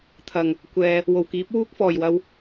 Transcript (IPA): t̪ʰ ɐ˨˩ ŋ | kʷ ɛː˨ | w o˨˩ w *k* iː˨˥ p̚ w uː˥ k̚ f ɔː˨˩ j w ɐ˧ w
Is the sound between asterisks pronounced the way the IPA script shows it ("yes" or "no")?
yes